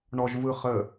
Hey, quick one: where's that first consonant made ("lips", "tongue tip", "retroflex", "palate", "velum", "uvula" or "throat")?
retroflex